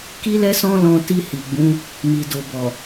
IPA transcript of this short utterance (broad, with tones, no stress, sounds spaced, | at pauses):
k i˦ l ɛ˦ s ɔ̃˦ l ɔ̃˧ t i˧ h i˨ ɡ͡b ũ˨˦ | m i˨ d o˨ b ɔ˨